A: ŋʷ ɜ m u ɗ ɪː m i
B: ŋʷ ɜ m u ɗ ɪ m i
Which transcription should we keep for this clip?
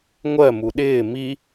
A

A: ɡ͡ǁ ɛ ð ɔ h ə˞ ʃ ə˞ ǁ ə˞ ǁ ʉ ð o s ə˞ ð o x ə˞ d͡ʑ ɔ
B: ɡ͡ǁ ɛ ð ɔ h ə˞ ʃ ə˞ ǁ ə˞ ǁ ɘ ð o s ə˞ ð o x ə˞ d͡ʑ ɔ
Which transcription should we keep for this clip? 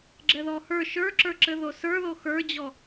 B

